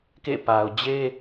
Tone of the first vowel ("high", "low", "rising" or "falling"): falling